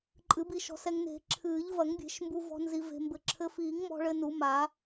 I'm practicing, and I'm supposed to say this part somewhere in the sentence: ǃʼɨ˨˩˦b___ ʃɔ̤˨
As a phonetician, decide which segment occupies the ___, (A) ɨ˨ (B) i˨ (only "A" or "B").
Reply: B